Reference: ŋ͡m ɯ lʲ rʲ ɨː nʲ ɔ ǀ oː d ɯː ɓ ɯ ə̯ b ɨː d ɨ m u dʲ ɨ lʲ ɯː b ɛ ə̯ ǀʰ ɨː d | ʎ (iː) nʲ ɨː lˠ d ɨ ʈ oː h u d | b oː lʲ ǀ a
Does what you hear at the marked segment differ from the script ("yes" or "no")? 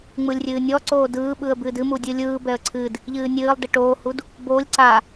yes